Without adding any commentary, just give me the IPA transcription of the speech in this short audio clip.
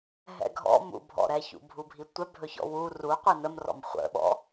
ɦ ɛ̰ ɡʱ ɔ̰ m ṵ bʱ ɔ̰ ɾ ɛ ç ṵ bʱ u bʱ i tʷ ɛ bʱ ɵ ç ɔ̰ w u r u qʷ i n ə m r ɔ̰ m χʷ ə̰ ɓ ɔ̰

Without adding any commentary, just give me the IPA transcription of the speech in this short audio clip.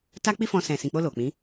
t a˦ k͡p i˦ f ɔ̃˧ s ɛ̃˨ s ĩ˨ k͡p o˧ l o˨ k͡p ĩ˨˦

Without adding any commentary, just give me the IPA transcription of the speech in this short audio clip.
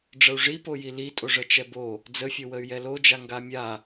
ɖ͡ʐ ə u̯ ʐ i p o j i l i tʼ o ʐ ə t͡ʃ ɛ b o | d͡z ə fʲ o w ə y̯ j ɛ l o d͡ʒ a ŋ ɡ a mʲ a

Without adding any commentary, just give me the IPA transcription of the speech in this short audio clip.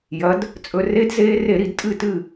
j ɐ˩˧ d | t͡sʼ ɵ˧ r e˦˥ d z eː˦˥ r e˧˩˧ ɾ i˧˩˧ d tʼ ɨ˥˨ t ɨ˥˨

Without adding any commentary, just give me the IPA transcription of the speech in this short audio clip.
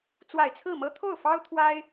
t͡s w a˨˩ ɪ̯ t͡sʰ ɹ̩˥˩ m ɤ˥ t̪ʰ o˥˩ ʊ̯ f ɑ˥ ʊ̯ t̪ʰ w a˥ ɪ̯

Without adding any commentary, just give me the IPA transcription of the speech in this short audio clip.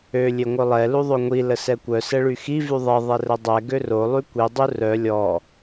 ø lʲ e ŋʷ œ lˠ ɛ l u ðˤ o ŋʷ i l ə s ɛ kʷ œ s ɛ ɭ y x i v y ðˤ ɛ ðˤ ɛ r ə dˤ ɛ ɡ ø r o lˠ y kʷ i dˤ u r œ lʲ ɔ

